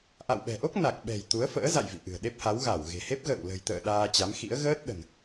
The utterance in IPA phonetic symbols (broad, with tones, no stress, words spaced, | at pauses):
ʔa̰˧˨wɓɛ̤˨˩ʔo˦˥k̚ na˨˩k̚ɓɛ̤˨˩j t̪u˨˦ə̯fə̰ː˧˥ za̰˧˨j vḭ˧˨ʔɨ̤˨˩ə̯ɗe˦˥p̚ha˨˦w ɣa˧˩wɣe̤˨˩he˦˥p̚ ɣə̰ː˧˨w lə̤˨˩jt̪ə̰ː˧˨ ɗaː˧t͡ɕa˨˦mxḭ˧˥ə̯ ɣəː˦˥t̚ɗə̤˨˩n